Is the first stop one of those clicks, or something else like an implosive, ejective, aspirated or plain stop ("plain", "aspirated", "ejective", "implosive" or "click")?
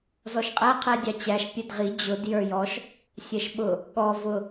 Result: ejective